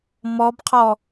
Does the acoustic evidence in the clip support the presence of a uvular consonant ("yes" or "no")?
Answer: yes